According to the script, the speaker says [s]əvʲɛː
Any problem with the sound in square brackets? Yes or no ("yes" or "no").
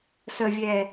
no